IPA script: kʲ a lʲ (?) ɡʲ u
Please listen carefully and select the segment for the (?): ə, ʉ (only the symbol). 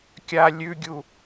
ʉ